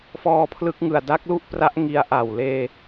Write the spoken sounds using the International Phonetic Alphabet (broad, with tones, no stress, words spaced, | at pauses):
fɔː˧pʰlɯ˦˥k̚ŋɯ˨˩a̯ da˦˥k̚lu˥˩ʔpra˦˥ʔ ŋi˧a̯ʔa˨˩w leː˧